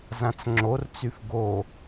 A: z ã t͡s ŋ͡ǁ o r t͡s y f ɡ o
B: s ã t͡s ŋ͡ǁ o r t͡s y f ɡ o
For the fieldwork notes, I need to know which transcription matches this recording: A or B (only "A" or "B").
A